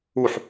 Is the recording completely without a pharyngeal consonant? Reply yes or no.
no